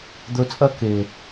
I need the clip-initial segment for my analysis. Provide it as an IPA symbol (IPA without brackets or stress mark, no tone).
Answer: d̪